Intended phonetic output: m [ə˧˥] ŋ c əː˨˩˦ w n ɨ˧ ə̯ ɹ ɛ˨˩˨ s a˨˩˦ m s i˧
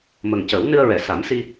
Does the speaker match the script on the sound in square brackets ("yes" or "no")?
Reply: no